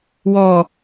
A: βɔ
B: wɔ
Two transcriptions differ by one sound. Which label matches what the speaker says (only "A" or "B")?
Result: B